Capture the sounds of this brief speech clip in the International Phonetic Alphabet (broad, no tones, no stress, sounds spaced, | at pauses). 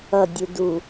ʌ dʲ u d u